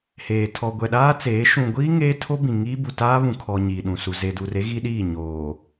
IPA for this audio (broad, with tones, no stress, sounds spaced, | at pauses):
h eː˨ tʰ ɔ˨ ɡʷ ɛ˨ ɗ aː˦ t͡s eː˨˦ ʃ ũ˨ ɡʷ iː˦ ŋ eː˦ tʰ o˦ b ĩ˨ ŋ iː˦ b u˨ t aː˦ β ũ˨ kʰ ɔ˨ ɲ iː˨ ɗ ũ˨ s u˨ z e˨ d u˨ r e˦ ɣ i˦ ɗ iː˦˨ ɲ oː˨